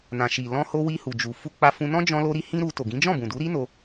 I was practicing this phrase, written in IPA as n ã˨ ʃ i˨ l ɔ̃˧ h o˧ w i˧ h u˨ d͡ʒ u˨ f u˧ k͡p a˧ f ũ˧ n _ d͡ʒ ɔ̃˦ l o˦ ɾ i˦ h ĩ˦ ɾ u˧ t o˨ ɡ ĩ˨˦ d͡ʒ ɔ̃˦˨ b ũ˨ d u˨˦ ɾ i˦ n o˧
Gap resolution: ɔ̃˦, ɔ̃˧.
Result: ɔ̃˦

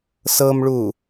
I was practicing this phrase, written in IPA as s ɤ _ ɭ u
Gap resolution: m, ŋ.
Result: m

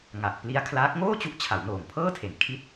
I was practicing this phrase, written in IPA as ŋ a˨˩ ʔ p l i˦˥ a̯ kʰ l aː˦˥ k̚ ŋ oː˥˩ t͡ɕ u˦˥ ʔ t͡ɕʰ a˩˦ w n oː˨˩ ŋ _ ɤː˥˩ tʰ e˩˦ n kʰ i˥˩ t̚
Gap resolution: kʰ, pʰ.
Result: pʰ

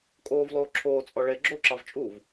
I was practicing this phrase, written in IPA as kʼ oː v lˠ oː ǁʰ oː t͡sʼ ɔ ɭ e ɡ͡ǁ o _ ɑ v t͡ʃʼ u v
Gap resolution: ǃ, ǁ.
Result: ǁ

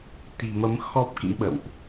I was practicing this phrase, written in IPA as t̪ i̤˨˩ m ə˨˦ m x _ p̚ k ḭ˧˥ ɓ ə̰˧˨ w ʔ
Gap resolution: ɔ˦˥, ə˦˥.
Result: ɔ˦˥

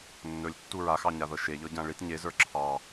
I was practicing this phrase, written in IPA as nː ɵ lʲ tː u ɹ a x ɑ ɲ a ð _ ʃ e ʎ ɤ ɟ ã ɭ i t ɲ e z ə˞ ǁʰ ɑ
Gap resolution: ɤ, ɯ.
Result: ɤ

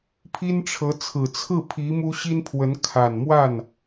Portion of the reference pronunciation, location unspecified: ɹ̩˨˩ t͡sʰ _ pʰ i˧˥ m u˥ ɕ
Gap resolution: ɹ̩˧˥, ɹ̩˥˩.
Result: ɹ̩˥˩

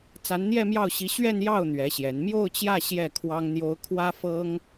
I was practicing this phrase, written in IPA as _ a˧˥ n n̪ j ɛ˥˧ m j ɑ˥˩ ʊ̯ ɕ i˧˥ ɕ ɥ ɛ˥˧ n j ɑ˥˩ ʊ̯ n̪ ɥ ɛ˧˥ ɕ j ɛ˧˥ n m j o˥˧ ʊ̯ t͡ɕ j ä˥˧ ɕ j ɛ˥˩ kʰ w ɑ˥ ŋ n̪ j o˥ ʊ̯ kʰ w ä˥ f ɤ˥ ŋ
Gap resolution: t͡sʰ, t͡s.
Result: t͡s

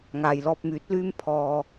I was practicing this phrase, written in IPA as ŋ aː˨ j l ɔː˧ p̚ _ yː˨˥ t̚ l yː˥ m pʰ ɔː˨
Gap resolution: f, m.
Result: m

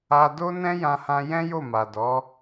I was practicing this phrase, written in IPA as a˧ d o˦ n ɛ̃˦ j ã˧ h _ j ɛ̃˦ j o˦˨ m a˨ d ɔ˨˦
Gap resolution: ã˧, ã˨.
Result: ã˧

